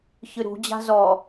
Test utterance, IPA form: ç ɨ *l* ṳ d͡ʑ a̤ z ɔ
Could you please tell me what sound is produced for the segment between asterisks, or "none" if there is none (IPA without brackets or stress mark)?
ɾ